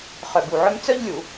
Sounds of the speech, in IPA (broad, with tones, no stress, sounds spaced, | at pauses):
χ œ˧˩ b u˧˩ ʕ œ˥ m t͡s œ˥ ʎ lʲ u˧˩˧